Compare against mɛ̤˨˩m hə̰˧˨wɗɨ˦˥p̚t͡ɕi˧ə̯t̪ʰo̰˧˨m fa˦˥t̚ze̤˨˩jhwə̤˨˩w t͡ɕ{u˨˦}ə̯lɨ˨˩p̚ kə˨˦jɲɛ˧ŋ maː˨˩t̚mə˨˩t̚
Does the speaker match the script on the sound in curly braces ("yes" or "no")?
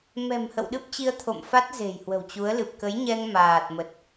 yes